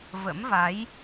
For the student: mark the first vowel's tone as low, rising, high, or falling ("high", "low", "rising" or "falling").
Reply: rising